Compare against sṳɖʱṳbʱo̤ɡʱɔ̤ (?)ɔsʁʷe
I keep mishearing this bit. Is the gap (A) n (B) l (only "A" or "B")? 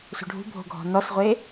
A